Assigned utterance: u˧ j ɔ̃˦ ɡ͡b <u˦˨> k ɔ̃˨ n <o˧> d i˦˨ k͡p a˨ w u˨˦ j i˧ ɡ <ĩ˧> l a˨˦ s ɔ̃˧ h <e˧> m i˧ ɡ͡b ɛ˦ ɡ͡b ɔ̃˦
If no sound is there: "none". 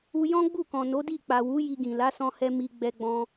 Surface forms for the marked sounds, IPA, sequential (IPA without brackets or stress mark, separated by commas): u˦˨, o˨˦, ĩ˨, ɛ˧